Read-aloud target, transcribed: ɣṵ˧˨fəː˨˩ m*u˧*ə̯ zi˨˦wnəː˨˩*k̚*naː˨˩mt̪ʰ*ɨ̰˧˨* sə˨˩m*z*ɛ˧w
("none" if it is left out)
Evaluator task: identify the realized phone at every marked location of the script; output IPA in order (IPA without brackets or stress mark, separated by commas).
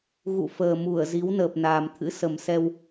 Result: u˧˩, p̚, ɨ̰˧˥, s